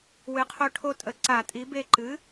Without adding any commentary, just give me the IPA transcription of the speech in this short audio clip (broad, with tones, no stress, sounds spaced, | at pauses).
w ɨ˨˥ qʰ o˦ ʈʰ o˦ tʼ ə˨˥ ǀ a˧˩˧ tʼ i˨˥ b e˦ ǃ ɨ˨˥